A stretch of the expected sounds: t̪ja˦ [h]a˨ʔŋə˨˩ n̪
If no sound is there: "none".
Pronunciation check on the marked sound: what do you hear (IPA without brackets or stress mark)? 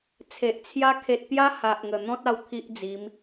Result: h